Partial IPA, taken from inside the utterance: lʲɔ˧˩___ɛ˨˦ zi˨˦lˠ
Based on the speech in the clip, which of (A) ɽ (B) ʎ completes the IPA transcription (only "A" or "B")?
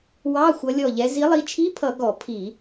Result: B